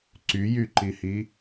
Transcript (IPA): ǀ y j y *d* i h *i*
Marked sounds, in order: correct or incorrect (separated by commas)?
incorrect, correct